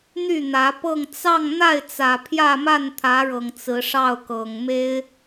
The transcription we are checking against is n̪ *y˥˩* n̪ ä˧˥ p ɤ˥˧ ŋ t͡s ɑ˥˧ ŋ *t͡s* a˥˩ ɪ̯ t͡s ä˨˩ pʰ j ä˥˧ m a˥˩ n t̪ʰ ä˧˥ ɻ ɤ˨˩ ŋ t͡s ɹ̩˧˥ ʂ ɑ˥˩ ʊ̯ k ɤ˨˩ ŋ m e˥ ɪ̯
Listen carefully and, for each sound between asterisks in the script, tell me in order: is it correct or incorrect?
correct, incorrect: n̪

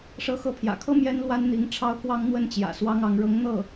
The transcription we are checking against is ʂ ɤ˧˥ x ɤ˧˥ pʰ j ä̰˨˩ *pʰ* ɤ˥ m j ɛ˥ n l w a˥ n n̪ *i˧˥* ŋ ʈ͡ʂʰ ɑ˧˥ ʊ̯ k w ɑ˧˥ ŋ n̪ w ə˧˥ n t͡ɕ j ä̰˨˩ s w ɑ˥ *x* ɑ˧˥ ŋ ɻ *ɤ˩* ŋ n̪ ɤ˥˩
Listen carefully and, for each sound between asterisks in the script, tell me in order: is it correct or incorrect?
incorrect: kʰ, correct, incorrect: ŋ, incorrect: ɤ˧˥

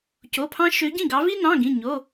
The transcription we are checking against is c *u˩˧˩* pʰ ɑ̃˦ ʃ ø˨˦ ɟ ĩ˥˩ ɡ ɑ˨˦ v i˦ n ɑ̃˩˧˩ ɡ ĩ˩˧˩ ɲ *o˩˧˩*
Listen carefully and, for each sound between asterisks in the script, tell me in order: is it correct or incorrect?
incorrect: o˩˧˩, correct

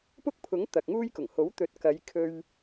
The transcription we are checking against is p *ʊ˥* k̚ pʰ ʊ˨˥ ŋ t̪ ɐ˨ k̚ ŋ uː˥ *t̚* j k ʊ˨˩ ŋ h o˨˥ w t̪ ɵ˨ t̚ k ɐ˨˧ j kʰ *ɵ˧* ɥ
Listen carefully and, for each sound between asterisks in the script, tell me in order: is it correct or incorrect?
correct, incorrect: none, correct

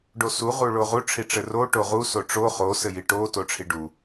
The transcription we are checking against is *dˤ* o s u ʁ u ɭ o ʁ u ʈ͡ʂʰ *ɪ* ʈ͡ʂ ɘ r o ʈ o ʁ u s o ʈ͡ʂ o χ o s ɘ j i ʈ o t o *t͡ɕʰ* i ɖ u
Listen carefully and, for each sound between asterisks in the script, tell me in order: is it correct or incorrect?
incorrect: ɖ, incorrect: i, incorrect: ʈ͡ʂʰ

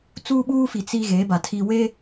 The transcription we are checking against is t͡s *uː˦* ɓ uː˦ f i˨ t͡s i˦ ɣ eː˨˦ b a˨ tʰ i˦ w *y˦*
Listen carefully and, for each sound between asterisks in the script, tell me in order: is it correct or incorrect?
correct, incorrect: e˦

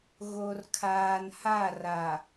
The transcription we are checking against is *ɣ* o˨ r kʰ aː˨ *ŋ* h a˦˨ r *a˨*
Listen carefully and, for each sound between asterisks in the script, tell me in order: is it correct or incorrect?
correct, incorrect: n, correct

